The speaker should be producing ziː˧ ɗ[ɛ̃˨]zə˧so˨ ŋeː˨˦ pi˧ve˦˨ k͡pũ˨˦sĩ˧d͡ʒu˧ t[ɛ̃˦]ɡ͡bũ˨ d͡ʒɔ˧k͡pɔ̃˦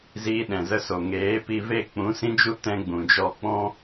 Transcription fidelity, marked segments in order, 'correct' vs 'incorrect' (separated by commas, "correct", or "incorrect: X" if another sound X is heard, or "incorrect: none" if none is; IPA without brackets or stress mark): correct, incorrect: ɛ̃˧